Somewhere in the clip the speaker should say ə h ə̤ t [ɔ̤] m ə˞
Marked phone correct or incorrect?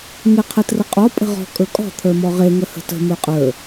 incorrect